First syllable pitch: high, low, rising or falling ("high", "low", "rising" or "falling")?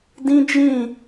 high